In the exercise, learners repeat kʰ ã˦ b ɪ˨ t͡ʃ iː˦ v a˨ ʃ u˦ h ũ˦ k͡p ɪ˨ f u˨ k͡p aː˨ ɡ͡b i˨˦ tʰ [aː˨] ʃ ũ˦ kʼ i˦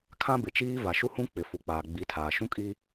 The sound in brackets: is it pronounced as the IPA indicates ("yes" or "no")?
yes